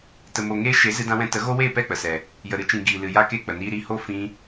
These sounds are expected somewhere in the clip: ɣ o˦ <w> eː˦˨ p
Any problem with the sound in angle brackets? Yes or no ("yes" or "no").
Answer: no